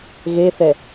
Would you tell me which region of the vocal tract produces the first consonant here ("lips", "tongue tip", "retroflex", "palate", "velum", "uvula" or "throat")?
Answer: velum